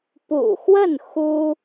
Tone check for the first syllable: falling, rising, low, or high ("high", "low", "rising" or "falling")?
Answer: low